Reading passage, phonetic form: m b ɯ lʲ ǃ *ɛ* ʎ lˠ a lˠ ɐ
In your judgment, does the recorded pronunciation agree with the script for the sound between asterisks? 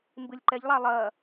yes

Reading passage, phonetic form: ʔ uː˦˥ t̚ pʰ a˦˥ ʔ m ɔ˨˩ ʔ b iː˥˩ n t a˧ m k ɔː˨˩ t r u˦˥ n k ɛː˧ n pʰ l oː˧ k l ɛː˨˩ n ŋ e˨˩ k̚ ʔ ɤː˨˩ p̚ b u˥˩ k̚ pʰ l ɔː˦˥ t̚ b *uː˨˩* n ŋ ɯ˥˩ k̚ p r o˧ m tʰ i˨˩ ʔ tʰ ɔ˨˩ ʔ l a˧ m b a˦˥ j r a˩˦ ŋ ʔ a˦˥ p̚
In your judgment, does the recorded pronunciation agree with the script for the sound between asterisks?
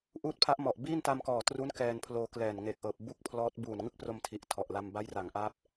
yes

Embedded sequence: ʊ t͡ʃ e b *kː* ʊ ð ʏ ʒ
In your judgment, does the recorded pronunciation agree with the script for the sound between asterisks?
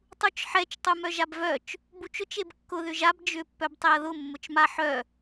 yes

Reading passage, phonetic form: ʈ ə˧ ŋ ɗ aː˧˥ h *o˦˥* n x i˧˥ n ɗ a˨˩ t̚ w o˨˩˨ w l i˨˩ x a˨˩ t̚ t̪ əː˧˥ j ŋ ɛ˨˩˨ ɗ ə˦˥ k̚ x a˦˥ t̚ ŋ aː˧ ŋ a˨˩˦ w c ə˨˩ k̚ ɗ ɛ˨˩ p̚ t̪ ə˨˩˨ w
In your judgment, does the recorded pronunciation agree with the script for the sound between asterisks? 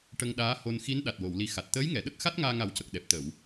no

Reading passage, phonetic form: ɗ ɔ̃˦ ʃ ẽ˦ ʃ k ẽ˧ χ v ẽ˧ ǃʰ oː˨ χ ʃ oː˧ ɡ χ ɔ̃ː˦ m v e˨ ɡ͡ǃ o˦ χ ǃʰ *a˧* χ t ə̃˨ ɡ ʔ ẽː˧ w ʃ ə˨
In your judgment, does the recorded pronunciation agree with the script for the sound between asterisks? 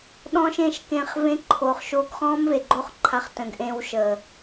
yes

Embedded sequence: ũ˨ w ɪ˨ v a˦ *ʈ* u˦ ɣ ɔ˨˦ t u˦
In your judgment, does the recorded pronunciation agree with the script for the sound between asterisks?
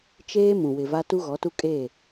no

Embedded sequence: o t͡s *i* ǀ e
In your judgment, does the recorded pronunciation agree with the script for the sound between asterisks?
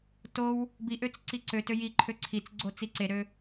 yes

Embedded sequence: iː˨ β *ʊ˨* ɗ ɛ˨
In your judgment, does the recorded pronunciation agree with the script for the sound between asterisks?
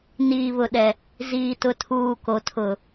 yes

